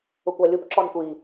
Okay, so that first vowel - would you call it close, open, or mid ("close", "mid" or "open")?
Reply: close